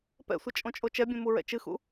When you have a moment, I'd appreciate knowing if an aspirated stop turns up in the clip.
no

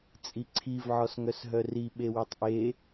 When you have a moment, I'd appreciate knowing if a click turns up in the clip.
yes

